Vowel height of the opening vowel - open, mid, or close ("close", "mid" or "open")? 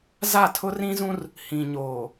open